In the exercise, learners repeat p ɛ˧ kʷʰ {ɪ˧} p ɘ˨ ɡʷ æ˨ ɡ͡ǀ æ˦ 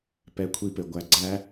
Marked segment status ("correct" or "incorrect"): incorrect